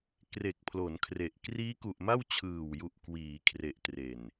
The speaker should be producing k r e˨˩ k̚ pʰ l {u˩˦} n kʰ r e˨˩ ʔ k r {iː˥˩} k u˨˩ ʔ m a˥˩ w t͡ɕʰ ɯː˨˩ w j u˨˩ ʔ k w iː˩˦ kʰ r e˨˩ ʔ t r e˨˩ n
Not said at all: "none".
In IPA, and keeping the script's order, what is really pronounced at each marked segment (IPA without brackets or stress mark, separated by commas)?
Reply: o˩˦, iː˦˥